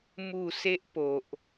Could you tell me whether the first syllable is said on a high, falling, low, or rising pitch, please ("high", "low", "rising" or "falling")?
falling